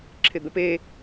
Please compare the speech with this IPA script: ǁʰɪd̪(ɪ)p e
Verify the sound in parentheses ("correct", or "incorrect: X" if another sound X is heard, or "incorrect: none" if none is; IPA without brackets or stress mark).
incorrect: ə